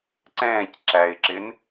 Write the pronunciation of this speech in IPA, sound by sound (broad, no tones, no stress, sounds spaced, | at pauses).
ǀ ɛ̃ː c ǁ æ ɪ̯ ǁ ɪ n